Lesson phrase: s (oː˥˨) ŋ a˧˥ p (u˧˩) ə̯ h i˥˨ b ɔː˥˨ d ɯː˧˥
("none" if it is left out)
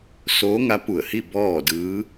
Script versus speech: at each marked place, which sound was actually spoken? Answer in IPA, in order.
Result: oː˧˥, u˧˩

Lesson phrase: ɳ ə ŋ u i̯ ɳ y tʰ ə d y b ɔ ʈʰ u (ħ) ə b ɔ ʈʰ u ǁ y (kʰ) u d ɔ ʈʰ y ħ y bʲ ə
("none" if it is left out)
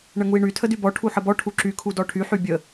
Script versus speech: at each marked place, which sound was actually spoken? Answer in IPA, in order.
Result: ħ, kʰ

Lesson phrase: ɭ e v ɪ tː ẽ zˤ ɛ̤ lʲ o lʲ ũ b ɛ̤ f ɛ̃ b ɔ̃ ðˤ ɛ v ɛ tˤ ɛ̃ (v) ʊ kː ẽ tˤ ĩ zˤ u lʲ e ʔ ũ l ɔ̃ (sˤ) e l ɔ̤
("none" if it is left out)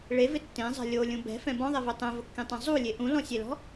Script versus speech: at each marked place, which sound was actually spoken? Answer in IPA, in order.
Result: v, sʲ

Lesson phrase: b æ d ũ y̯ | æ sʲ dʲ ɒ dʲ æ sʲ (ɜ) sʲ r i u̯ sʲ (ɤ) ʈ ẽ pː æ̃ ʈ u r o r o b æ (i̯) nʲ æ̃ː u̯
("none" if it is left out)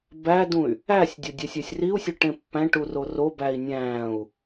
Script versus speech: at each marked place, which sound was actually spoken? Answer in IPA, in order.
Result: æ, o, i̯

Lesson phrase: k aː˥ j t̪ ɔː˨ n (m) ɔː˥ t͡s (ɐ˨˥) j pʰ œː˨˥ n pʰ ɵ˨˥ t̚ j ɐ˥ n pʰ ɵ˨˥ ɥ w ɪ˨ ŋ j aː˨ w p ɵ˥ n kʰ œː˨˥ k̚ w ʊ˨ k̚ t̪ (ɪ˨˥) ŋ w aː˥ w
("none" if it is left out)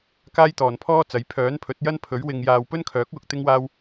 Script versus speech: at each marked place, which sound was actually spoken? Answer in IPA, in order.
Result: pʰ, ɐ˨˥, ɪ˥

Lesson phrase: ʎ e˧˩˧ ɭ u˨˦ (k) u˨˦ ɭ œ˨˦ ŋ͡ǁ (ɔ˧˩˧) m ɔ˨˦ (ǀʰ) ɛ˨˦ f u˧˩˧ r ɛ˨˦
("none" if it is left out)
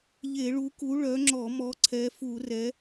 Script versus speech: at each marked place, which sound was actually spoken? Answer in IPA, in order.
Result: k, ɔ˧˩˧, ǀʰ

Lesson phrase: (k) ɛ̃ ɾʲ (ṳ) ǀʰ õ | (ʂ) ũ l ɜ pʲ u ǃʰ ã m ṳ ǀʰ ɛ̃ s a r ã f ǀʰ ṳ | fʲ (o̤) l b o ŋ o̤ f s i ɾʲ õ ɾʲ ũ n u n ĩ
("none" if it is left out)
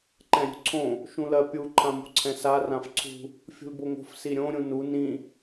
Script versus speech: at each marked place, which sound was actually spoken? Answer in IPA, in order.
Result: ǃ, o̤, ʃ, ṳ

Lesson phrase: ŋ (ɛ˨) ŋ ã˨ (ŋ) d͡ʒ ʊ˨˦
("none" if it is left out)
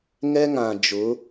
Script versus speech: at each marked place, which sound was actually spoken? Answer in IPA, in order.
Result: ɛ˦, none

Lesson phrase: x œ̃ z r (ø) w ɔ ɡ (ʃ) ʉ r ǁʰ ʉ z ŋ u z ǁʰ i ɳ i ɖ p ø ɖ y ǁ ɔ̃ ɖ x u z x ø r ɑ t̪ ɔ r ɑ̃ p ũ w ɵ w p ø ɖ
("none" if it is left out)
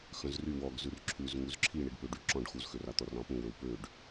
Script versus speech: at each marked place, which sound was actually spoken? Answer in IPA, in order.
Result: y, z

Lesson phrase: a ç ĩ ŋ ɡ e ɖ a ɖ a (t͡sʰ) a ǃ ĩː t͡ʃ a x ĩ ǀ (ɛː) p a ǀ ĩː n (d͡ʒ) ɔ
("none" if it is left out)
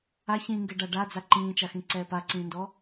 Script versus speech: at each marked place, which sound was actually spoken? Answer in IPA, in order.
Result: d͡z, ɛː, d

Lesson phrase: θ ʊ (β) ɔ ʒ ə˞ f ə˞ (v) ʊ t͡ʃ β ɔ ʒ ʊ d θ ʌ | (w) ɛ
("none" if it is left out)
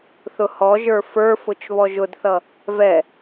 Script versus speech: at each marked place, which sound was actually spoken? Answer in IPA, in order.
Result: h, f, v

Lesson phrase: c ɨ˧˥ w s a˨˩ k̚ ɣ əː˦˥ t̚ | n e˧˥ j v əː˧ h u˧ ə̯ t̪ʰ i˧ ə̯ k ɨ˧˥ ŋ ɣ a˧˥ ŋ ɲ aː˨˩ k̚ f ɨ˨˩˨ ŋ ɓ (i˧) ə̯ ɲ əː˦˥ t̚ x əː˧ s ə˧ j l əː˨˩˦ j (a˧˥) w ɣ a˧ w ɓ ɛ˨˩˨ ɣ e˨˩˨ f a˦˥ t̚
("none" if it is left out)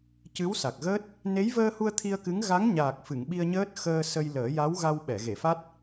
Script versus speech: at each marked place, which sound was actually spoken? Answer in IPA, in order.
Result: i˧, a˧˥

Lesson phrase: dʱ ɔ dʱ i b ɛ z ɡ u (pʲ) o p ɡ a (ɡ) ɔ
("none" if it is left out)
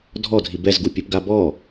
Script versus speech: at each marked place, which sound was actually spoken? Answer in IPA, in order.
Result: pʲ, b

